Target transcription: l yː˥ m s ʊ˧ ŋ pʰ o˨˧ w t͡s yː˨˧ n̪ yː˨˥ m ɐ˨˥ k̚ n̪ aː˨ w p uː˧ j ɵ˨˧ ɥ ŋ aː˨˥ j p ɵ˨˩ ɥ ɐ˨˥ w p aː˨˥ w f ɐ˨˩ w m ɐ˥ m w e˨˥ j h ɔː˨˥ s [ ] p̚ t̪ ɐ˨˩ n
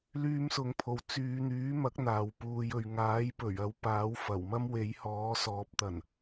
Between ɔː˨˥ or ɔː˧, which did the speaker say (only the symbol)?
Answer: ɔː˨˥